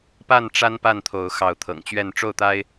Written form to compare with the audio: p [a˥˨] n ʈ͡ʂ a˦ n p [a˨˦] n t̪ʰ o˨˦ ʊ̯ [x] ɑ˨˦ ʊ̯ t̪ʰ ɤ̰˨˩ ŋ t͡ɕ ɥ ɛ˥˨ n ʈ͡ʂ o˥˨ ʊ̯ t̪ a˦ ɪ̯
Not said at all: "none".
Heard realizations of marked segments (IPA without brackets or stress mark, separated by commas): a˥˨, a˥˨, x